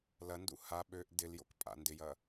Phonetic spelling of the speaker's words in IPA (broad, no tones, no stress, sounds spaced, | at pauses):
l ɐ n d ṵ h a ɓ ø ʔ d ɪ l j o̰ k pʼ a̰ n d ɪ j ɐ